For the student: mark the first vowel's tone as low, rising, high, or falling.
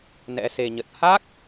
rising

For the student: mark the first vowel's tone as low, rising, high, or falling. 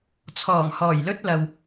low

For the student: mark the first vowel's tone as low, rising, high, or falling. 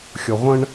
low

